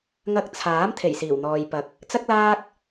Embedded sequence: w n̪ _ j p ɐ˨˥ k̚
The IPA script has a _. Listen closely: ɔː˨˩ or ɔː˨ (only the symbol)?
ɔː˨